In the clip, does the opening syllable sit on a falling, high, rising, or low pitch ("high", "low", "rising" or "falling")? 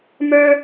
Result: high